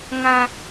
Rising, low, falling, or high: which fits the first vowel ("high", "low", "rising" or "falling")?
low